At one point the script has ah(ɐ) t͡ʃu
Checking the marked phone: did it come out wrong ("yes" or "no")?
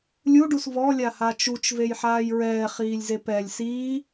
yes